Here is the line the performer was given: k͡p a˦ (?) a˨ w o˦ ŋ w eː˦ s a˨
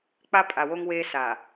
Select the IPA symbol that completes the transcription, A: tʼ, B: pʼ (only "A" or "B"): B